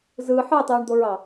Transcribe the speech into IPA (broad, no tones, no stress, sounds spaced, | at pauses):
z ɯ ħ ɯ tˤ yː ɳ d̪ o ɹ ɑ